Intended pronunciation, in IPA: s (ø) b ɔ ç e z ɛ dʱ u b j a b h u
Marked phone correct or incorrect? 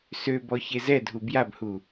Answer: correct